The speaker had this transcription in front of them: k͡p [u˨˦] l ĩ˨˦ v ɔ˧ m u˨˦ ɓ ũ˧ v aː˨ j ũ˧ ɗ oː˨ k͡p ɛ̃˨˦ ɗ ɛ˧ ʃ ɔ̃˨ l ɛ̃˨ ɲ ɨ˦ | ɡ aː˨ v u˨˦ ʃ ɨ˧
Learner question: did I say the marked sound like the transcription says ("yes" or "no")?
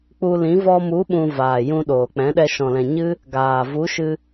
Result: no